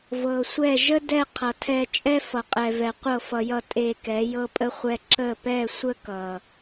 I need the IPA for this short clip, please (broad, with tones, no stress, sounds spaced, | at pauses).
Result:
v ɤ˨ sʷ ɛ˦˨ ʒ ə˦ d ɛ˦˨ qʰ ʌ˨ tʰ ɛ˧ t͡ʃʼ ɛ˦ f ʌ˨ qʼ ɛ˨ v ɛ˨ qʷ ɤ˦˨ f ʌ˧ j ʌ˧ tʼ e˧ k ɛ˨˦ j ɤ˦ pʼ ə˦ χʷ ɛ˦ ǁ ə˦˨ p ɛ˦˨ sʷ ə˦ k ʌ˨